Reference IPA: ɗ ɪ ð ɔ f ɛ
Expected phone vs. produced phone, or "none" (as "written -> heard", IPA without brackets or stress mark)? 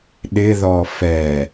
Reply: none